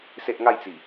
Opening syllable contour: high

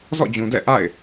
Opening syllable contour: falling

